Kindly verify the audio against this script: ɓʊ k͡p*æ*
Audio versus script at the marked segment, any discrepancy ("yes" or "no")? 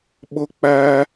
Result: no